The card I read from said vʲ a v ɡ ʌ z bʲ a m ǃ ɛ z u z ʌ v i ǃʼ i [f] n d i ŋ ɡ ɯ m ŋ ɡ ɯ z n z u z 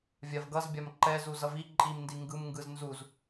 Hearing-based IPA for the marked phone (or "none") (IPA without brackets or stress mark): m